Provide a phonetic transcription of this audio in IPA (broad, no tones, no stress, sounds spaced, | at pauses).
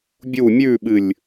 bʲ u mʲ ʉ ɓ ɨ lʲ